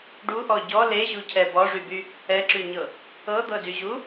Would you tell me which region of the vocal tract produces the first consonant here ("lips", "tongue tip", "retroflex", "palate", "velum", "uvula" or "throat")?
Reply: retroflex